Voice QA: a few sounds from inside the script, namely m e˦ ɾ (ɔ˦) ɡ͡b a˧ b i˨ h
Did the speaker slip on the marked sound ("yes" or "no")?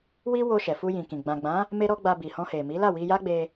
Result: no